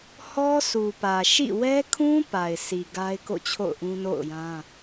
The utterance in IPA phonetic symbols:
hɔ˦ su˨pä˨ ʃḭ˦˨ wɛ˦kʰũ˦ pa˨ɪ̯sʰi˨ ɡa˦ɪ̯ko̰˦˨ t͡ɕʰo̰˦˨ʊ̯ʔũ˦no̰˦˨ʊ̯jã˦

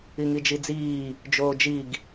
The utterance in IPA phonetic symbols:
iŋid͡ʒid͡ziː | d͡ʒoːd͡ʒiɡ

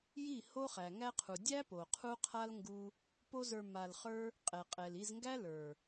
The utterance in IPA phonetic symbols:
ji˦˨ ho˦χæ˨ŋæ˦qʰu˨ dʲæ˦po˨ qʰu˦qʰa˦l ŋɡu˦ | po˦zə˞˧ ma˧lχə˞˦ | qʼɛ˨qʼɛ˨li˧zŋɡæ˦ lə˞˨

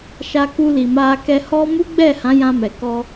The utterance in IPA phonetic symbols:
ʃa˧ku˧li˨ ma˧ kɛ˧hɔ˦ mu˦ɡ͡bɛ˦˨hã˨˦ jã˧mɛ˨kɔ˧

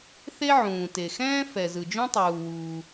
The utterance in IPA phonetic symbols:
θe˥ʕũː˩te˩xɛ̃ː˥ fɛ˩zɯ˩d͡ʒũ˥tˤuː˩ wuː˩

